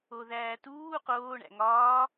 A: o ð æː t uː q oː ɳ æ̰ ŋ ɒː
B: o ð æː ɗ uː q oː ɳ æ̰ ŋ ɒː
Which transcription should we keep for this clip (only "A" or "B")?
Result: A